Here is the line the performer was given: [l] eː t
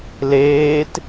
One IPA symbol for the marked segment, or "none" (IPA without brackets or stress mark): l